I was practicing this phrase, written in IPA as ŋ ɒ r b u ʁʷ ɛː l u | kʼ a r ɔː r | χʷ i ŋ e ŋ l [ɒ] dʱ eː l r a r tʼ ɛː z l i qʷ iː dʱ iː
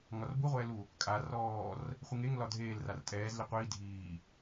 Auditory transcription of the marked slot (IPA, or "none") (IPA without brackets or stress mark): ɒ